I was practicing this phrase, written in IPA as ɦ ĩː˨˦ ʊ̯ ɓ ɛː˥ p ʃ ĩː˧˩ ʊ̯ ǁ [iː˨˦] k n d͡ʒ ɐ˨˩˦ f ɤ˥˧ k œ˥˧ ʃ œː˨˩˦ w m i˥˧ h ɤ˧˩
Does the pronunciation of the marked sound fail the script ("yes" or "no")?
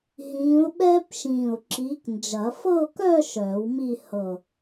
no